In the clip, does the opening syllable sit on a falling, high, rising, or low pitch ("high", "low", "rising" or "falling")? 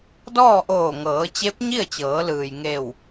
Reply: falling